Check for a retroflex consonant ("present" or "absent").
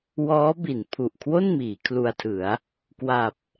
absent